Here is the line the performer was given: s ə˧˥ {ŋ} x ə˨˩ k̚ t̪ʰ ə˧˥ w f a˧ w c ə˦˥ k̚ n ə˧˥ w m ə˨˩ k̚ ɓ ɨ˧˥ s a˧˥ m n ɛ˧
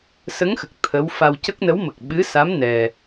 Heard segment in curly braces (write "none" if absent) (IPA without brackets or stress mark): ŋ